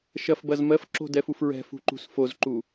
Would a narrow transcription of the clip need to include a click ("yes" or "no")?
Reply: yes